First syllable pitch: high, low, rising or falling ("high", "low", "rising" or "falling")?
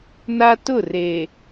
high